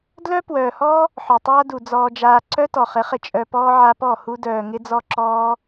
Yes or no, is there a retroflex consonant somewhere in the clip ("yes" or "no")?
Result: no